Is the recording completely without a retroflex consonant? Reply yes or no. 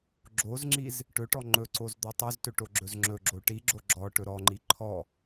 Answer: no